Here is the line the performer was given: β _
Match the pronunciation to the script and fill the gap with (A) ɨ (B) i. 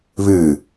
A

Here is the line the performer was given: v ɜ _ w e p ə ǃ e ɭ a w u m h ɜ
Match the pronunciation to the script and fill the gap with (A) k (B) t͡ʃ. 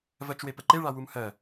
B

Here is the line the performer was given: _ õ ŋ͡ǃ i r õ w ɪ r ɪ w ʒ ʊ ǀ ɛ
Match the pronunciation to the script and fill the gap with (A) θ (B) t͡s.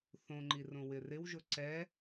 A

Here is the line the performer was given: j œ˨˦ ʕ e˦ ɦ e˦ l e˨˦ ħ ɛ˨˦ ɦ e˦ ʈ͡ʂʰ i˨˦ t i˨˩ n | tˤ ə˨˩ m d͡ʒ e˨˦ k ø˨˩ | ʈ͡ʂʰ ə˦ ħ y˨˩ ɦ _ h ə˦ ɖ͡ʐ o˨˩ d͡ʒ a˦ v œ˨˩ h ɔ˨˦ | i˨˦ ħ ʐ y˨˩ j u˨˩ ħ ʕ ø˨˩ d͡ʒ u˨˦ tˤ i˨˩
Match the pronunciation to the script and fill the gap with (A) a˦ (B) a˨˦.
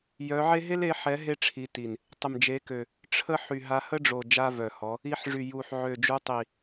B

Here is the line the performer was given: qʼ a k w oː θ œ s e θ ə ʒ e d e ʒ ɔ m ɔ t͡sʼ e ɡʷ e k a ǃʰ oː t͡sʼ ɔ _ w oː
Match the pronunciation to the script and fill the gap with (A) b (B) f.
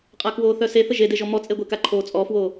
B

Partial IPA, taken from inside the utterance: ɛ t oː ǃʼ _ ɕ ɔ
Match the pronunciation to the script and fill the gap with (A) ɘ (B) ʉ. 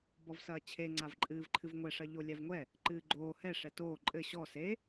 A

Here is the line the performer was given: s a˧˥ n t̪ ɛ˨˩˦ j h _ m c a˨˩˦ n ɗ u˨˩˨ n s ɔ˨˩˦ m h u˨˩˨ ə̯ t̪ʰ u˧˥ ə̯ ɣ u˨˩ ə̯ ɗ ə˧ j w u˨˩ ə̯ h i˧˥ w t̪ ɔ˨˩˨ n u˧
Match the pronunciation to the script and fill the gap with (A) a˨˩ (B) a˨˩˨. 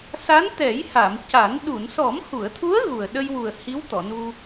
B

